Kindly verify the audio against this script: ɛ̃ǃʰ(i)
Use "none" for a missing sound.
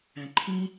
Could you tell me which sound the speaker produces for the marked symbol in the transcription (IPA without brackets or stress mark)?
ĩ